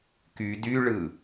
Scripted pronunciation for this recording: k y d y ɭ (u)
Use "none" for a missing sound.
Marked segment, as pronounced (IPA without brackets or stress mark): ɯ